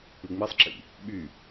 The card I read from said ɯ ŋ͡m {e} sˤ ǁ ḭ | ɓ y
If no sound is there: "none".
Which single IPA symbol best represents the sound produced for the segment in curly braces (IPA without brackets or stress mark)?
i